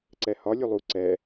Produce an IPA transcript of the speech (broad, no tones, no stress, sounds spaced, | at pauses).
ǀ ɛ h ɒ lʲ u lˠ u ǀ ɛ